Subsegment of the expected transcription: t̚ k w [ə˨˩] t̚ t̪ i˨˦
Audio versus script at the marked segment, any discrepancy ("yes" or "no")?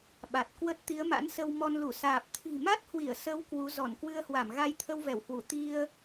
yes